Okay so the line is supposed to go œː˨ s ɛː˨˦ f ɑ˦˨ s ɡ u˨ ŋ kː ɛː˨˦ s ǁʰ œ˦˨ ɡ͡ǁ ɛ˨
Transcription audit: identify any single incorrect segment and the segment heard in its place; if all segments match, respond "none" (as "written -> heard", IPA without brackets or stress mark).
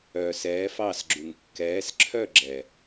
ɡ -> ɡ͡ǁ